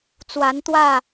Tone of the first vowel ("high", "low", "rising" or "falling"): rising